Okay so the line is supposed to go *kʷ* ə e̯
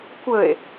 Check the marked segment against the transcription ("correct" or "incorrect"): correct